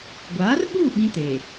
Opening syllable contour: rising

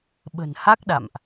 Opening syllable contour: low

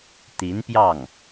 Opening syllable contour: rising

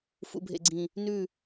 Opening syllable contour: low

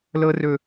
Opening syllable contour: high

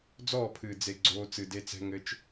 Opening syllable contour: falling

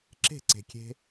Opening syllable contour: falling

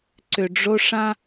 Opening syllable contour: low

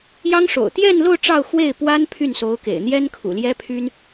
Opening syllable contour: high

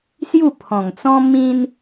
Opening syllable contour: falling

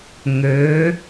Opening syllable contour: rising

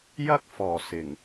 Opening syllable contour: high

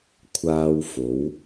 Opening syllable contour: high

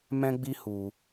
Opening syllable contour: high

